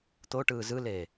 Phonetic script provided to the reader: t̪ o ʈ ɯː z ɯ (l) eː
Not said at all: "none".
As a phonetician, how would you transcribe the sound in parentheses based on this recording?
l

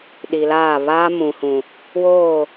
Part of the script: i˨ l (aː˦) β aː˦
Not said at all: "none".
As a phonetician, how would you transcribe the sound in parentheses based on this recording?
aː˦˨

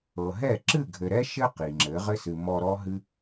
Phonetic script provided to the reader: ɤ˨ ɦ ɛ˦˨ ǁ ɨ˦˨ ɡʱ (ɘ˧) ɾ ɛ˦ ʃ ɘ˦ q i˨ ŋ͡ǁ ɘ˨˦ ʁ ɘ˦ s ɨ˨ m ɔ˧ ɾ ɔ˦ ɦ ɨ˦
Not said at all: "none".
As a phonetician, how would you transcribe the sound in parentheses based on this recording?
ɘ˨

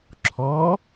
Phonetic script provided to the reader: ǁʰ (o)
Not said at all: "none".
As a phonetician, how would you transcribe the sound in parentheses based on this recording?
ɔ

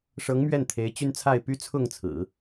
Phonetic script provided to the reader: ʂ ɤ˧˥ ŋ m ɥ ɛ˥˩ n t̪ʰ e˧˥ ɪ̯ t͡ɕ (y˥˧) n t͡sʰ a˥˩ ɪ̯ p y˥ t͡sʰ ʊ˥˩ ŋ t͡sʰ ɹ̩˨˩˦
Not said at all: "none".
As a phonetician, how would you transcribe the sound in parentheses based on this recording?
y˥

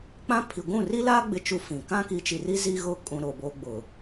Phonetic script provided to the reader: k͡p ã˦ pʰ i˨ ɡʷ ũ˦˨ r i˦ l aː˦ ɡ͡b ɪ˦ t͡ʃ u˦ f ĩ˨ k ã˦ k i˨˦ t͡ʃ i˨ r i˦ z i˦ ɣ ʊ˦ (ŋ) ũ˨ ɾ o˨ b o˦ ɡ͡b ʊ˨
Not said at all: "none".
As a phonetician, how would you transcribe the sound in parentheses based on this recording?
kʼ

